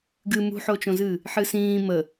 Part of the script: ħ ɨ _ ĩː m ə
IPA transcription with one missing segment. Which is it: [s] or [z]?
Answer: s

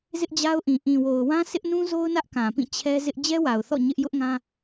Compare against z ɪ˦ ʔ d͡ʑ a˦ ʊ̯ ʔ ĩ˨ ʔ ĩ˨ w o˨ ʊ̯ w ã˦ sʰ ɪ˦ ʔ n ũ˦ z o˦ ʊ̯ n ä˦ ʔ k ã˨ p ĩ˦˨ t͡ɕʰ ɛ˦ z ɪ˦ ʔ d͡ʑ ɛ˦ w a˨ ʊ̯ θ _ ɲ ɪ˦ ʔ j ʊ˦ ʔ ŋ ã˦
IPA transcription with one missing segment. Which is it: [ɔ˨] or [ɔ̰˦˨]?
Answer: ɔ̰˦˨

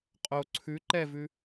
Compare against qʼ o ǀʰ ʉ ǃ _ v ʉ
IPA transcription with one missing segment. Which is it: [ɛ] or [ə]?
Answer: ɛ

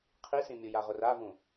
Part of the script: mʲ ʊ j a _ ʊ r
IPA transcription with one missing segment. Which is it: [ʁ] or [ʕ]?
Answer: ʁ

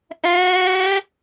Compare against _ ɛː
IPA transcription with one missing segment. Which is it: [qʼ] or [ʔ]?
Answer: ʔ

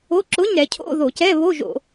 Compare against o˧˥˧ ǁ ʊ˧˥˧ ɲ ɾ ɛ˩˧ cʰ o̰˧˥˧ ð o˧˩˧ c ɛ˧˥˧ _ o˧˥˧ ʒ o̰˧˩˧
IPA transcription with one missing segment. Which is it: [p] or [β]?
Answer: β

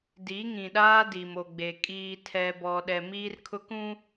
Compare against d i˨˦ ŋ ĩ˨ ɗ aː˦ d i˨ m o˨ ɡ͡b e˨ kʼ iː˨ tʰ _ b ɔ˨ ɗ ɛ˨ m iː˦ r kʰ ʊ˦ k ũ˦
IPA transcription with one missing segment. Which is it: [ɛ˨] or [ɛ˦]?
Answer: ɛ˨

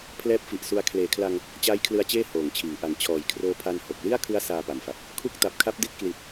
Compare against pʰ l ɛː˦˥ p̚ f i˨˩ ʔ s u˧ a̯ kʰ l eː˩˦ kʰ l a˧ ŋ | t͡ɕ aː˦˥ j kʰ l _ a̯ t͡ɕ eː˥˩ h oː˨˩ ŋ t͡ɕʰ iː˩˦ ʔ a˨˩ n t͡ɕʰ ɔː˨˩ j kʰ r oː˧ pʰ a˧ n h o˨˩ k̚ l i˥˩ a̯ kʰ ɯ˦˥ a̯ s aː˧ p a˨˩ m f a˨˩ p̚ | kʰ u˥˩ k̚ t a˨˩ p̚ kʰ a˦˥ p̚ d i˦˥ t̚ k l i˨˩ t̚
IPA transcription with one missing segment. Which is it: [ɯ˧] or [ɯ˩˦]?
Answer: ɯ˧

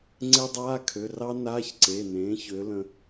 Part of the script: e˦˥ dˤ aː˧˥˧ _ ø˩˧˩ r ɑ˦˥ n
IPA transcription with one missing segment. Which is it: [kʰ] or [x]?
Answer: kʰ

